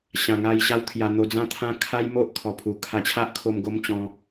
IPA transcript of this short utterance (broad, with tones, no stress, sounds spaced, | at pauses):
ɕ ã˨˩ ŋ a˧ j ɕ a˧ w t̪ʰ j a˧ n̪ o˧ d͡z ã˥˧ t̪ʰ ã˦ kʰ a˦ j m o˦ ʔ kʰ ɔ˨˩ pʰ u˨˩ kʰ a˧ t͡ɕʰ a˦ ʔ kʰ o˧ m ɡ o˧ m t͡ɕ ɔ̃˧